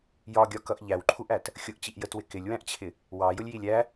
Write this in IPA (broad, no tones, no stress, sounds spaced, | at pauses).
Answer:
j ɒ ɡʲ ɒ k ʌ ʔ ʎ æ w ǃʰ u ʔ æ t | xʲ ʊ ʔ t͡ɕ i ʔ j ə t w ɪ k ɪ lʲ w æ̃ ʔ t͡ɕʰ ɪ | w ɑ j ʊ lʲ j i lʲ æ